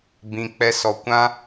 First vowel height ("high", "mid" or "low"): high